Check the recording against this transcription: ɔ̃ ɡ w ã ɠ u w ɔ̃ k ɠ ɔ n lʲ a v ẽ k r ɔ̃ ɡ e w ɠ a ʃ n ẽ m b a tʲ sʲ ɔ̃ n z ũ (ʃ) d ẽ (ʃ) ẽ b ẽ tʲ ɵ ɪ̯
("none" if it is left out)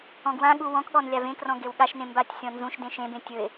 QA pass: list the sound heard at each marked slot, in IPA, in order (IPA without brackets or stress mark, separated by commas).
ʃ, ʃ